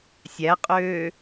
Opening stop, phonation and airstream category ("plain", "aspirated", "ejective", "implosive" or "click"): ejective